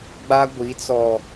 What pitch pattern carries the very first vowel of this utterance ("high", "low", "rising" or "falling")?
high